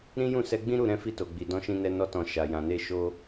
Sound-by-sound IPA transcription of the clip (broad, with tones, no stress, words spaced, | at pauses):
ɾĩ˦jũ˦˨sɛ˧ ɡ͡bĩ˦ɾu˦˨ɾɛ̃˧ fi˧to˨ ɡ͡bi˨dɔ̃˧ʃĩ˧nɛ˧ nɔ˧tɔ̃˨ ʃa˨jã˨ne˧ ʃo˧